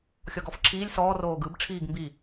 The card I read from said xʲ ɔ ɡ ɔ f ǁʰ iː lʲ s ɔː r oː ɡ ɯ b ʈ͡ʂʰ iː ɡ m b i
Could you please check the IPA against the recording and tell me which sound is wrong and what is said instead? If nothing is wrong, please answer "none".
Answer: none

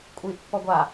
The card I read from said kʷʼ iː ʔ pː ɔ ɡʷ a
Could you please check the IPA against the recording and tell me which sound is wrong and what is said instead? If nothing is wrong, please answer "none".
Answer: none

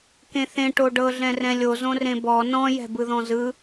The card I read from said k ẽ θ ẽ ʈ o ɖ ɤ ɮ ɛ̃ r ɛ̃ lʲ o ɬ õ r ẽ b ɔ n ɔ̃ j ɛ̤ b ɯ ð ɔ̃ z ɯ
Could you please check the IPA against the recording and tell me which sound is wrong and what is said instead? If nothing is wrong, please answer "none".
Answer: ɬ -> z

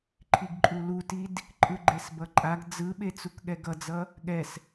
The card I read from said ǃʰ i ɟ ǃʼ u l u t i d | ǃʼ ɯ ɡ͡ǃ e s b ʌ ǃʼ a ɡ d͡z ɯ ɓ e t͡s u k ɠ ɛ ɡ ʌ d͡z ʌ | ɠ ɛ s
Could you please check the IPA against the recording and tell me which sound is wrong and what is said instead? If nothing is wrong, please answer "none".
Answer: ɟ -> ɡ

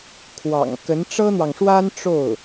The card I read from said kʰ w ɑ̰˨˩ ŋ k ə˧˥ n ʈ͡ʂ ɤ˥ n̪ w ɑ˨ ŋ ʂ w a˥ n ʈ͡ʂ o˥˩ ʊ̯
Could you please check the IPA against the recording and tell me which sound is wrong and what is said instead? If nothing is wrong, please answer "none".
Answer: none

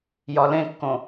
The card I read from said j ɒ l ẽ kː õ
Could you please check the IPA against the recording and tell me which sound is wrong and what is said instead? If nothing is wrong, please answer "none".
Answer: none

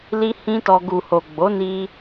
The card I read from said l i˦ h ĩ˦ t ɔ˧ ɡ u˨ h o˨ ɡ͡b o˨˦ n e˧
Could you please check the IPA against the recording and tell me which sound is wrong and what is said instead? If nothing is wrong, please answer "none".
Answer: e˧ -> i˧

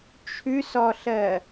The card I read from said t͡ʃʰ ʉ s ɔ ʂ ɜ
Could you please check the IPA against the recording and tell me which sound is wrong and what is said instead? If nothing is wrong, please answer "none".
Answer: ʂ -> ɬ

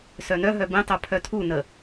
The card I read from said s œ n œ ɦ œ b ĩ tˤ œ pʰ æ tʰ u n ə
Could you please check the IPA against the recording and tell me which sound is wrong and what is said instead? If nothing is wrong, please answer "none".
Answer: æ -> œ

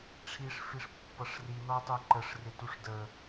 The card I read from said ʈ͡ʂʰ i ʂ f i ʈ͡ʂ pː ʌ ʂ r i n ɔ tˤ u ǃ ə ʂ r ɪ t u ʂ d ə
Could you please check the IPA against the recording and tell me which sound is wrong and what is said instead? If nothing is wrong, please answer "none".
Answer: ʈ͡ʂ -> ʂ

